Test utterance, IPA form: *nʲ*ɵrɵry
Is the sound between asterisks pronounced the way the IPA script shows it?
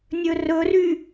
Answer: yes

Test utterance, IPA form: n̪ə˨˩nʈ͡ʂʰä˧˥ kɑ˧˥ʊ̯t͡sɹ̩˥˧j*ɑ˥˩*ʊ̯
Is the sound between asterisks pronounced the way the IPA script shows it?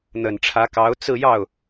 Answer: yes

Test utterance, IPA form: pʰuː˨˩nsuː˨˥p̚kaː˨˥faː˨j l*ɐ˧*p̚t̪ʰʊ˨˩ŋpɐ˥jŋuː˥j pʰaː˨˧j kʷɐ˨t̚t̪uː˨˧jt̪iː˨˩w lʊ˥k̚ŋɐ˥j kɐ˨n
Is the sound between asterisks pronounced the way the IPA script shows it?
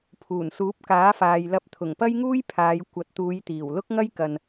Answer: yes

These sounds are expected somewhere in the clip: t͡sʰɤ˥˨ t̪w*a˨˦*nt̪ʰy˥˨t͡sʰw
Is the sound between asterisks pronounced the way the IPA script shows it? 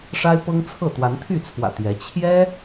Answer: yes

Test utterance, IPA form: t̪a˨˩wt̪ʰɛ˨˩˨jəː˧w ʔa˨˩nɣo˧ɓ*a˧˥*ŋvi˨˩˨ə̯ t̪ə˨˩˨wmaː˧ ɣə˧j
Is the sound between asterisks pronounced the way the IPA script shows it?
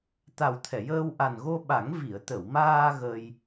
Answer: no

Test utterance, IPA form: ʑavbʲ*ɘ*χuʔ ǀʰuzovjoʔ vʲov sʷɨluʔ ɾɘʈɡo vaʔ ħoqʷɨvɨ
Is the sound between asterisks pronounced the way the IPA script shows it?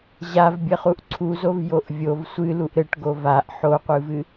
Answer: yes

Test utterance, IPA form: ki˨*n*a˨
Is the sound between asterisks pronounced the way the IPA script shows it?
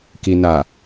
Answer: yes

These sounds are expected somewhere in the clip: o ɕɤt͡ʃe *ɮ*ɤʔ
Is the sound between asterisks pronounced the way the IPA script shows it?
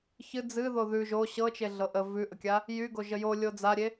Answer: yes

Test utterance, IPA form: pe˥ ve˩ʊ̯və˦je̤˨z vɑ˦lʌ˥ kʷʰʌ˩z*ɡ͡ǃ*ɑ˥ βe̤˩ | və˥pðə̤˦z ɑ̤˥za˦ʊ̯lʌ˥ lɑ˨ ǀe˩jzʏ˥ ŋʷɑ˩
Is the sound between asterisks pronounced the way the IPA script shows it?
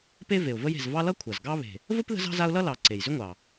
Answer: no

